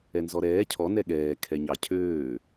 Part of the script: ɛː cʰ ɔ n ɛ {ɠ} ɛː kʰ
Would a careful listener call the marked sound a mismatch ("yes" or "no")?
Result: no